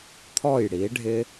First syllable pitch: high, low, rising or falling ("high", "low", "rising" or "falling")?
falling